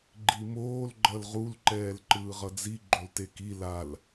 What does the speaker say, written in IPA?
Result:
ɡ͡ǃimoːl ɡ͡ǃʌlʁulǃɛːl ǃɯːʁʌd͡zi ɡ͡ǃolteki lal

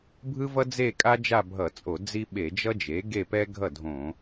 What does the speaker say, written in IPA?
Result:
bʱɯ˥vʌ˥ d͡ze˥˧kʼa˥ d͡ʒa˥˧bʱʌ˧˩˧t͡sʼo˧˩˧ d͡zi˥ ɓe˧˩˧d͡ʒʌ˥d͡ʒe˩˥ ɡe˥˧pɛ˥ ɡʱʌ˥˩dʱõ˧˩˧

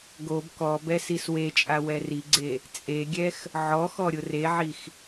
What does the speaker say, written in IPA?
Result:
ɡob kɔbɛ siswet͡ʃʼa wɛriɡ͡ǀe | t͡sʼeɡʲɛx | ʕɔxɔ ɾʲʊreʕix

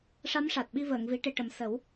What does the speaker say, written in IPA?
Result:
ʂa˧˥mʂa˨˩t̚ɓi˧ vəː˨˩˨ŋvi˨˩˦ ʈe˨˩ʈə˨˩˨m sə˨˩˦w

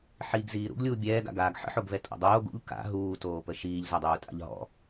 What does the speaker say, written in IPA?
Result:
ħiːɡziːɾṵɡ lʲuːbʲɛːɡa̰ ɡaːɡħə̰ħoɡvɛ tʼɔ̰dˤoːɡ ṵʎ ka̰ ɦuːtoːpə ʃiːʎzadˤuːtʼa̰ʎ ɦɔ̰

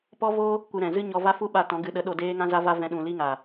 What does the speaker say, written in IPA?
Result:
pɔ˦vo˦ | kʷɨ˧ɾɛ̃˨ zɨ˦ɲɔ˧va˦ fu˦ɓa˧ tɔ̃˨˦ ɡɨ˨ɗə˨˦ ɗo˧deː˦ ŋã˧za˧va˧ vɛ̃˧ɗũ˨ li˦ŋa˨

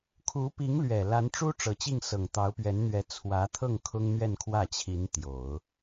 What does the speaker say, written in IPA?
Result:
kʰu˧˥pi˧˥ŋlɥɛ˨˩ la˧˥nʈ͡ʂu˥ ʈ͡ʂɤ˨˩t͡ɕi˥˩ŋsɤ˨˩ŋ t̪ɑ˧˥ʊ̯pɥɛ˧˥nn̪ɥɛ˧˥ t͡sʰwä˧˥t̪ʰɤ˥˩ŋ kʰʊ˥ŋn̪ɥɛ˥˧nkʰwä˥˩t͡ɕʰi˧˥n t̪jo˨˩˦ʊ̯

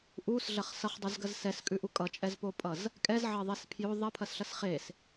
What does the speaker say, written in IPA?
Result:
ʔuːsɮɐχ sʌχdˤuzɡɐz sɛskʼʉʔu kʼʌt͡ʃʼɛzpopʼʌz | kʼɛzʕɐðˤes pʰjo ðˤɐpʰɐsɬɐs χeːs

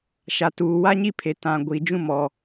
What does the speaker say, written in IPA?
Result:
ʃa˨tuː˨ wa˦ɲi˦pʰe˨ tã˨ ɡʷi˨ d͡ʒũ˦mɔ˨

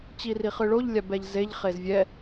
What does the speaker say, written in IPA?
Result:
t͡ɕiriχɯɭoʎ lʲabɛʎzeʎ χezvʲɛ

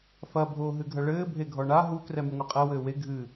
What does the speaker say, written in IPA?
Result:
fɐ bʱoːɦɨɡʱɐɭɘː bʱeɡʱɔɳa ɦu krɛmɨŋʷɘqʼɛ wɘːwe ɡʱɨ

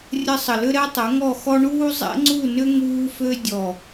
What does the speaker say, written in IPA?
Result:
rʲə˧ sˤə˨ lʏ˦ɾɛ˦ tˤə˨˦ŋɔ˦˨xɔ˦ ɳuː˦zˤɛ̰˦ŋ͡ǀu˦˨nʏ˦ ŋuː˧fø˧ dʲɔ˨

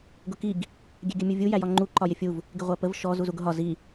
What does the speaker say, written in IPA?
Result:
ɡʊkiɡ | ɡʲɛɡʲəmʲuvʲu jæjɒŋ͡ǃu ǃɒjɪfʲuv | ɡɪʁʷæpəv ʃɔ zuzuɡʊɦɒ zi

